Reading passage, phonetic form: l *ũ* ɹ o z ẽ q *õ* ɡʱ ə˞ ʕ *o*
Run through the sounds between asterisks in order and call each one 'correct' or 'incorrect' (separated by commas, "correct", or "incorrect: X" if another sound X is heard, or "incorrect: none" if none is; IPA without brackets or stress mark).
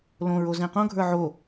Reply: incorrect: õ, correct, correct